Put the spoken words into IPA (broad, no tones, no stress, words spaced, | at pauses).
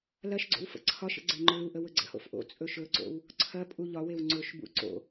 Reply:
lɐʃɡ͡ǀo̰w fə̰ǀʰɒʃə̰ ɡ͡ǀeŋ͡ǃɵluʔə wɵɡ͡ǀə̰ho̰f ʔo̰ t͡sʼɵʃɵǀo̰w | ǀʰɐ pʼuʎɒwew ŋ͡ǀɵʃbṵ ǀo̰